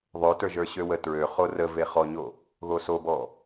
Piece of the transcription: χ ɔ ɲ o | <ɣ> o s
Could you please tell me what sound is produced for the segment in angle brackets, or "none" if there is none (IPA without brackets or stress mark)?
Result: ɣ